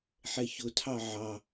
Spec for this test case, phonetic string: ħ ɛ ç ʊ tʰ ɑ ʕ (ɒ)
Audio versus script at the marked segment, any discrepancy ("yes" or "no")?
yes